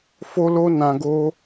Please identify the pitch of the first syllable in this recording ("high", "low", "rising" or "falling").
high